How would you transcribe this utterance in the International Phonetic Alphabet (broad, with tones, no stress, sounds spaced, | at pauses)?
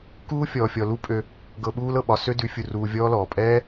k uː˦ fʲ ɔː˨ fʲ ɔ˨ l u˦ pʼ ø˧ | ɡ ɤ˧ ɓ uː˦ l ɤ˨ ɓ ɒ˨ s ø˦ d ʉ˨˦ fʲ u˧ r uː˧ vʲ ɔː˦ l ɔː˨ pʼ ɛː˦